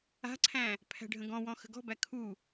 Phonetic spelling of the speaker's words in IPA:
a̤ǀʰæ̃ | pʰæ̤ɖʱə̃ɡɔ̃wɔ̃ xə̤ɡɔ̤bæ kʰu

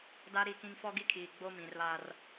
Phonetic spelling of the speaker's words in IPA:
da˦ɾi˦˨kĩ˦ŋ fɔ˦ɡi˦kʰiː˨ ɡ͡bo˦mĩ˨rβa˦r

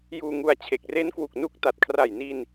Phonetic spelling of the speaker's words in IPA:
juː˧ŋu˧a̯t͡ɕʰe˨˩k̚ re˦˥nkwu˨˩k̚nu˦˥k̚ta˨˩t̚ kʰra˨˩jni˧n

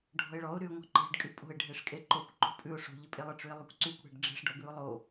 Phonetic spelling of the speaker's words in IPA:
ɖʱɔ̤ɪ̯ɭɔʊ̯ ɾyʊ̯ŋɔ̤ǃe̤ɖ kʼypʼo̤ɪ̯ ɖʱeʂkʼeǃokʷ ǃo̤pʼʉʊ̯ ʂo̤ ʎɪpʼelˠɪ ʈ͡ʂʉɪ̯lˠykʷǀykʷ ɽe̤ɖɖ͡ʐe̤ʂ ɖɔbʉʊ̯lˠo

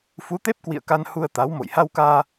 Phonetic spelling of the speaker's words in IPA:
fu˨˦t̪e˦˥p̚kwḭ˧˨ə̯ka˧n hu˧ə̯t̪a˨˦wmo̰˧˨j ha˧wkaː˧

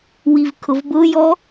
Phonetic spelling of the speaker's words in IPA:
wivkʰʊvbʊjɔ

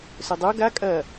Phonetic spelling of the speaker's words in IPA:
sɵdˤo ɡa kʼɐ

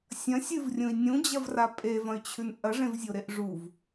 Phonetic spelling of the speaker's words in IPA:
sʲɐ̃ sʲɨvrʲũi̯ nʲũd͡ʑɐvra pʼevɐ̃y̯t͡ɕʰʉn ʔɐʐẽvzʲoɾeʔ ʐuv

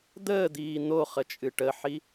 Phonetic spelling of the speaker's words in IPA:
d̪əːd̪iː n̪o χət͡ʃʼɨʈəħi

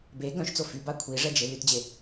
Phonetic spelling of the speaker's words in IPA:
be ɡœ̃ʃt͡so fyba kʷʰiʐɛd͡ʒe lytd͡ʑe

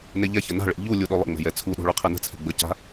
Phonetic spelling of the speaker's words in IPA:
neʎɛçə na̤ɭḛ ʎu lʲuɗolˠə̰ŋ͡mɛ̤ jɛt͡sʰuɗo̤ ɭyqʰɛnə̤t͡sʰɛ̤ ɡ͡bəca̤

